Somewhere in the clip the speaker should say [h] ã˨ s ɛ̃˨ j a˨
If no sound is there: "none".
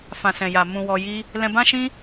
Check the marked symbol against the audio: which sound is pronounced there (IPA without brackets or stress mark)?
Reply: f